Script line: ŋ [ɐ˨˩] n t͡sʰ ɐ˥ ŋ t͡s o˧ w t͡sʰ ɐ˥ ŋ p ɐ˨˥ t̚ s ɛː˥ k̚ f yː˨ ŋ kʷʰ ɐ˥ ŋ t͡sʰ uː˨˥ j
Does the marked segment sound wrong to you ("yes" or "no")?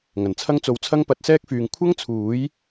no